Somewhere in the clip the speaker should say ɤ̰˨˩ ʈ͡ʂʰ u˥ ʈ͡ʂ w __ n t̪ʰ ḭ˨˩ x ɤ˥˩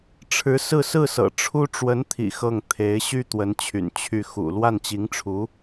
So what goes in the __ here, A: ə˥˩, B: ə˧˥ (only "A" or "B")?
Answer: B